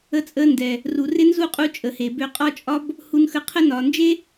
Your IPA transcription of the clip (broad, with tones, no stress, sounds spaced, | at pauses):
ə˧ t͡sʼ ə˧ n d ɛ˨ | r u˨ r ɪ˦ n z u˦˨ qʼ u˧ t͡ʃʼ ə˨ h e˨ b ø˧ qʼ ɒ˦ t͡ʃʼ ɒ˦ b | h u˧ n x ə˧ qʰ ə˦ n ɒ˨ n d͡ʒ e˦